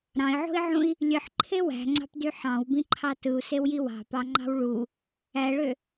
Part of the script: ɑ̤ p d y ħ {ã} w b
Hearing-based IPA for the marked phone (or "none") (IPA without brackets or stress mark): ɑ̃